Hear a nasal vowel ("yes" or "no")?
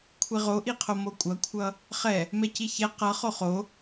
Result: no